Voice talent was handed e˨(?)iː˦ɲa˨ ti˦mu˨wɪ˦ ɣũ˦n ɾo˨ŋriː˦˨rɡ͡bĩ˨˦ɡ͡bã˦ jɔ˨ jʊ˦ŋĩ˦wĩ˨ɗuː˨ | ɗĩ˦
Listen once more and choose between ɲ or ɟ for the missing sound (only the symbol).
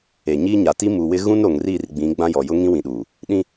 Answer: ɲ